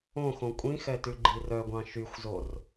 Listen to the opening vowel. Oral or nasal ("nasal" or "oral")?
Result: nasal